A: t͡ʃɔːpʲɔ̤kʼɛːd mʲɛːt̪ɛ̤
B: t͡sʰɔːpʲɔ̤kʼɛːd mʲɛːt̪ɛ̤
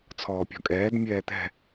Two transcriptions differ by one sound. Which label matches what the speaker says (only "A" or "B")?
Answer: B